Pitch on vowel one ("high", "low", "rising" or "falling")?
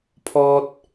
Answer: high